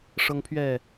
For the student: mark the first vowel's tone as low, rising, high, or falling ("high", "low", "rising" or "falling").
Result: high